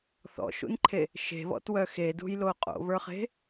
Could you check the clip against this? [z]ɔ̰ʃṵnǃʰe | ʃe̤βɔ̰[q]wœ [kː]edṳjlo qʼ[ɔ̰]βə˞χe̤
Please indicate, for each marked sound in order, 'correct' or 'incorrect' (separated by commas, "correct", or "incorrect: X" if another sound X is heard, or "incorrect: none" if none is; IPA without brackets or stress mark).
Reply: incorrect: θ, incorrect: t, incorrect: x, incorrect: o̰